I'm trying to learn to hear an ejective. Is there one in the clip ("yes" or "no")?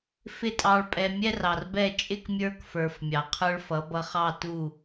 yes